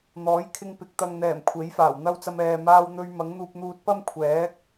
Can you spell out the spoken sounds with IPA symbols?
n̪ ɔː˨˥ j kʰ ɪ˧ ŋ p ɪ˨˥ k̚ t̪ ɐ˨ ŋ n̪ ɛː˨˩ m kʷʰ e˨˥ j f aː˨˩ w n̪ ɐ˥ w t͡s ɐ˧ m ɛː˨ m aː˧ w n̪ ɵ˧ ɥ m ɐ˨˥ ŋ n̪ uː˧ p̚ n̪ uː˧ t̚ p ɐ˥ m kʷʰ ɛː˨˥ k̚

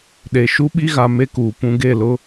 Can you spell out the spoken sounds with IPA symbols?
ɗ e˨ ʃ u˦ ɓ i˦ ɣ a˨ m e˦ k uː˨ p ũ˨ ɡ e˦˨ l ʊ˦

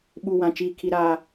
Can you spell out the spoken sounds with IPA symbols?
ɓ u˨ w ã˨ t͡ʃ iː˨ kʰ i˨ ɾ aː˨

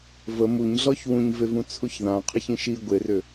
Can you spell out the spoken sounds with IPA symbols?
v ə m u ɲ ɮ ɔ ç w ũ ɲ v e v ũ t͡sʰ u ç ð ã qʰ ə ç ĩ ʃ i ɡʷ e r ʏ

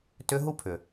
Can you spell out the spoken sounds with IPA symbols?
t ʏ˧ ɦ u˦ pʰ ʏ˨

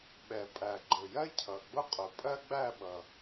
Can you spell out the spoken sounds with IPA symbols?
ɓ ɛ˨˩ pʼ æ˨˩ ɡ͡ǃ ʊ˨˩ j ɜ˥ cʰ ʌ˨˩ ɡ͡b ʊ˥ qʼ ʊ˨˩ pʼ ɜ˥ ɡ͡b æ˥˨ ɓ ʌ˨˩

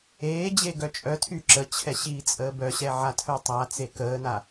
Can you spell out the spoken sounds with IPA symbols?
eː d͡ʑ e ɡ œ t͡ʃʼ œ tʰ y ǁ ə t͡ɕʰ ɛ ɕ iː t͡sʼ əː b œ ɕ ɛ ʕ a tʰ œ tˤ a t͡s e k əː n a

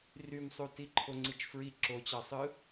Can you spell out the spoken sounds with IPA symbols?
r y m sˤ u t i ǃʰ o ŋ͡ǀ i t͡ʃ f ɹ i ǁ o t͡ɕ ɑ sˤ ɯ

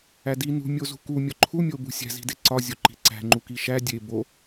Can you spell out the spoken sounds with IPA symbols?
æ d i n ṳ mʲ o z ṳ k u mʲ ɒ ǃʰ u mʲ o b ṳ sʲ æ̤ z i̤ d e ǀ ɒ zʲ o ǃ i̤ ǀ æ̤ ŋ͡ǃ u k i ʃ æ dʲ e b o

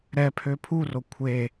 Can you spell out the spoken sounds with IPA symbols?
ɾ ɛ pʰ ø pʰ u r o kʷʰ e

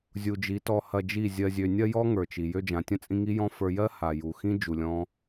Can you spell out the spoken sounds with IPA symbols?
zʲ u˨ d͡ʒ i˨˦ t ɔ˧ h ɐ˧ d͡ʒ i˦˨ zʲ ɜ˨ zʲ ø˨ nʲ ɐ˧ j ɔ˦ ŋ ə˞˨ t͡ʃ i˨ j ø˧ d͡ʒ ã˨ tʲ ɐ̃˦ t͡sʼ ĩ˧ ŋ i˦ j ɔ̃˦ f ə˞˧ j ɜ˦ h a˨ j u˨ x ĩ˦ d͡ʒ u˧ lʲ ɔ̃˦

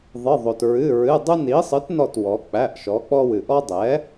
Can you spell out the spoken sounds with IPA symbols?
ðˤ ɨ˩˧˩ ðˤ o˩ t ɹ ɨ˩˧˩ ɹ ɨ˩˧˩ dˤ ɨ˦ n i˩˥ sˤ ɨ˩˥ t n ɔ˧˩ t w ɔ˩˧ k͡p æ˩˧˩ ʔ ʃ ɔ˩˥ k͡p ɔ˦ w ɨ˩ ʔ ɔ˦ dˤ ɛ˩˥

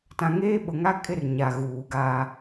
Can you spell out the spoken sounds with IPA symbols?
t ã˨ ŋ eː˦ ɓ ʊ˨ ŋ a˦ kʼ ɪ˦ r ɲ a˨ ɣ uː˨ ɡ aː˦

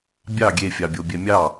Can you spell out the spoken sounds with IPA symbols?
bʲ ɑ ɡʲ e fʲ ɑ bʲ o bʲ ɛ mʲ ɑ

